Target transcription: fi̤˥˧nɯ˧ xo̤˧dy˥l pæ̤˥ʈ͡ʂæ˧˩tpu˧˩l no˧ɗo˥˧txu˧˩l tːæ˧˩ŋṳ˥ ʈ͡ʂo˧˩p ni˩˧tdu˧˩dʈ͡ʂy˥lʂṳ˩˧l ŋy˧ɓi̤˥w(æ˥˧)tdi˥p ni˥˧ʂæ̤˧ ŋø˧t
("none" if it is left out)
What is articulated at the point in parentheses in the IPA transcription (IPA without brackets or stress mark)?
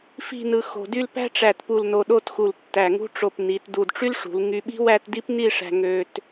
æ˥˧